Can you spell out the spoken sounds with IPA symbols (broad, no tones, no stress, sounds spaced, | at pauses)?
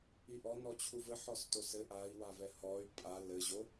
i ʔ ɔ n ɔ t͡ɕʰ u v ɘ ħ ɔ s t o s ɘ ʔ a i̯ w a v ɛ h ɔ y̯ pʼ a l ɘ ʑ o